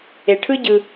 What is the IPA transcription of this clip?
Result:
e˨ʈʰɯ˦ ɟɯ˨

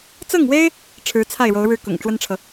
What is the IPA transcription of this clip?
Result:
t͡sɤ˥˩ŋwe˥ɪ̯ | ʈ͡ʂʰɻ̩˧˥t͡sʰa˥˩ɪ̯ɻo˧˥ʊ̯ɻɻ̩˥˩ kʊ̰˨˩ŋʈ͡ʂwə˥nʈ͡ʂʰɤ˨

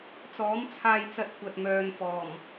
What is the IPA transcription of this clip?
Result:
t͡sɔː˨˥mt͡sʰaː˧jt͡sɐ˧t̚ kʷɐ˨t̚mœː˨nfɔː˨˩m

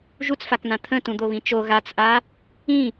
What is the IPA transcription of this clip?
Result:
ʒut͡sfakn̪ã t̪ʰə̃tũ d̪oβĩt͡ʃo ɣat͡sʔa | ĩ

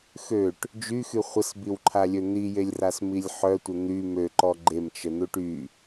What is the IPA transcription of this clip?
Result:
xøʈ | d͡ʒyxy χʷəsbiwǃʰalʲø n̪ijelʲrasmilʲ ħœtʷə n̪y møǃɔ ɡ͡ǃemt͡ʃən̪uʈ y

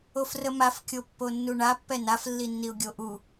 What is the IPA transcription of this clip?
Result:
ofrəmaf kʲopːonːuɳa pːɛnaf lːinːiʊ̯ɡʲoʔu

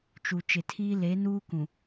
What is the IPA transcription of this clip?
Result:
t͡ʃu˨ t͡ʃɪ˨tʰiː˦ le˨˦ nuː˦kũ˨

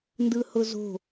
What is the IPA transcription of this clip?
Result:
ndɯhʊzo̤

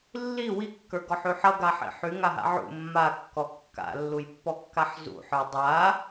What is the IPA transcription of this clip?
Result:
lːi wikːə˞ɡɔħy ħʌɡaħḭ ħyŋaɦa̰ ʕṵ mːakːɔ kːa̰lːujpːɔkːaħ zṵħə˞ dˤa

